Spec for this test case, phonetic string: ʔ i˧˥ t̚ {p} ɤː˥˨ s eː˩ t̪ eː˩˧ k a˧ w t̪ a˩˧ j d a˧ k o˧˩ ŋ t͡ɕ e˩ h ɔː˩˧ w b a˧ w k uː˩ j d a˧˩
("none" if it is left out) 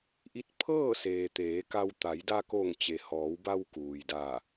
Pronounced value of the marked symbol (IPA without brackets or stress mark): pʰ